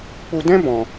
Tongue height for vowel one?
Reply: high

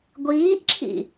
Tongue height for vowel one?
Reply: high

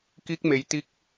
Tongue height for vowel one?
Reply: high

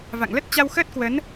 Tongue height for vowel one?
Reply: low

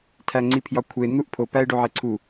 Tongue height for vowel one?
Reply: low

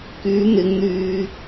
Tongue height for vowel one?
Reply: high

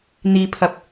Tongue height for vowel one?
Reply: high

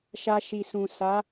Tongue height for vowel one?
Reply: low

